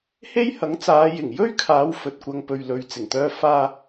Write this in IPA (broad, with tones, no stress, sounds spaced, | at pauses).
h e˥ j h ɐ˨˥ ŋ t͡s aː˨˧ j ɪ˨˩ ŋ j ɵ˥ ɥ kʰ aː˨˧ w f ɵ˨ t̚ kʷ ɐ˧ ŋ p ɵ˨ ɥ l ɵ˨ ɥ t͡s ɪ˨˩ ŋ t̪ œː˧ f aː˧